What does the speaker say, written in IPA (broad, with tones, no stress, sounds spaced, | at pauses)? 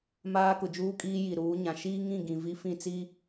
m aː˦ k ʊ˨ d͡ʒ uː˦ kʼ iː˦ j i˨ ɾ uː˨˦ ɲ ã˨ ʃ iː˦ ŋ ĩ˦˨ ɡ ĩ˨ v i˦ f ĩ˦˨ t͡s i˦